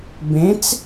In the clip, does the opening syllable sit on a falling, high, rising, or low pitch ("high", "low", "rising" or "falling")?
rising